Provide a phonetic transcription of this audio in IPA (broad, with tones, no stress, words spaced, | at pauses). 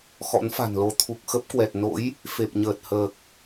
xɔ̰˧˥nfa̤˨˩nlo˨˦ t̪ʰu˨˩k̚xə˦˥p̚kwɛ˨˩t̚no̰˧˥j | fe˨˩p̚ɲəː˨˩t̚ həː˨˩k̚